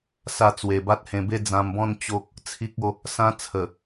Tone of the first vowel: falling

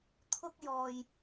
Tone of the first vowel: high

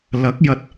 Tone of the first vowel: rising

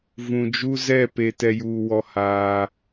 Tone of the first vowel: low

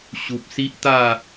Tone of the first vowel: low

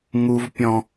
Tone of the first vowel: high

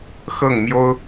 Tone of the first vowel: falling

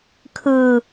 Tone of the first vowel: high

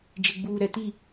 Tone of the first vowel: low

